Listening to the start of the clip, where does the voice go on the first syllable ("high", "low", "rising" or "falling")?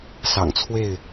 low